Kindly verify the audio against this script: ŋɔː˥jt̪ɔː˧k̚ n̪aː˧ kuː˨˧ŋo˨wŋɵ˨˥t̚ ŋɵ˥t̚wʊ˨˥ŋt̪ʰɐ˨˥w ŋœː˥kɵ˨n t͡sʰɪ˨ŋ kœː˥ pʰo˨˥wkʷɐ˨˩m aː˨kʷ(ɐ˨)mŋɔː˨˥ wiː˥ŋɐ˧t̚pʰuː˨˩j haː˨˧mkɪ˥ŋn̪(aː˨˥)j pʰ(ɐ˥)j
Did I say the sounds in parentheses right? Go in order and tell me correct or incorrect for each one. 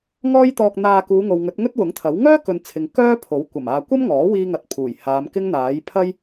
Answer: incorrect: ɐ˥, correct, correct

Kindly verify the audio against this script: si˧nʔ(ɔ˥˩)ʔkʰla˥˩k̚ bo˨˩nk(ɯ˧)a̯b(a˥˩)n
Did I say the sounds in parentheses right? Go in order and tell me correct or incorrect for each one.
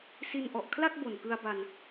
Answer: incorrect: ɔ˨˩, correct, incorrect: a˧

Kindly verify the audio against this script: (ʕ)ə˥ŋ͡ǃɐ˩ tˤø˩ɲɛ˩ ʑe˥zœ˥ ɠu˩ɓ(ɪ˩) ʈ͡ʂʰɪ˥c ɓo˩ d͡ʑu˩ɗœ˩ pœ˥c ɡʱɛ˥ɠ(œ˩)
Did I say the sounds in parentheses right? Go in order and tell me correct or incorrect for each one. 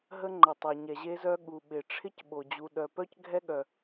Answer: incorrect: ɦ, correct, correct

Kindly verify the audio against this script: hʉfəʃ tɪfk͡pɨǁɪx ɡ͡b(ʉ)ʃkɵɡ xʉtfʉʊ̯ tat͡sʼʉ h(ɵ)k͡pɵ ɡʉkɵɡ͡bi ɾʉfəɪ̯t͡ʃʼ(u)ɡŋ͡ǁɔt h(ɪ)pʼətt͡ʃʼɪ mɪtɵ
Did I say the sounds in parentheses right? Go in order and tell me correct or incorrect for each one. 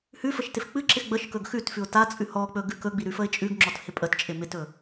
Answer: incorrect: ə, incorrect: ɔ, incorrect: ʉ, correct

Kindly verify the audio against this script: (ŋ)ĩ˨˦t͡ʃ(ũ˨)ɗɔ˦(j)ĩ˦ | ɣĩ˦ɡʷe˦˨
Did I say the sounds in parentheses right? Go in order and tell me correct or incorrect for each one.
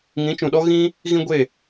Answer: correct, correct, incorrect: ɣ

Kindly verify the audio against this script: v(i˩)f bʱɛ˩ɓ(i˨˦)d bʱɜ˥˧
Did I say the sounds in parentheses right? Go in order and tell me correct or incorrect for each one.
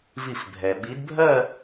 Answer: incorrect: i˧˩, correct

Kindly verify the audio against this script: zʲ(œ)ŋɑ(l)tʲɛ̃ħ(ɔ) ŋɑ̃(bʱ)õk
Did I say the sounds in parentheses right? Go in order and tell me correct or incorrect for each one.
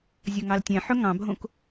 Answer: correct, correct, incorrect: ɵ, correct

